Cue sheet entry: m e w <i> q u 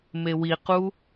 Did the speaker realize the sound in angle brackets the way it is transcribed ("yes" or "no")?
yes